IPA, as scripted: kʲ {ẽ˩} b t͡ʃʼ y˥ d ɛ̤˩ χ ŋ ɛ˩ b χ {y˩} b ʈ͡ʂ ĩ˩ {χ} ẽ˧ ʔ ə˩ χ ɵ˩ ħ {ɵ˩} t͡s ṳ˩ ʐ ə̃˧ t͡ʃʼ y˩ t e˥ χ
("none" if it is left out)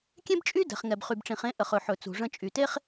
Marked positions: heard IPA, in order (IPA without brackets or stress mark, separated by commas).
ẽ˥, y˩, χ, ɵ˩